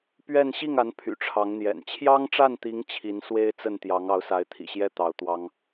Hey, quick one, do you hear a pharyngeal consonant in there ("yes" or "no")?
no